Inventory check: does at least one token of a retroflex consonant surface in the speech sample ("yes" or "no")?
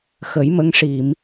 yes